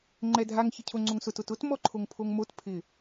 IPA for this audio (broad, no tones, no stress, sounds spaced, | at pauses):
ŋ͡ǃ ɛ dʱ a ŋ ç ɪ cʰ o ŋ͡ǀ o ŋ s ʊ t ʊ t ʊ t m ɔ ǃʰ o ŋ pʰ o ŋ m o t pʰ ɪ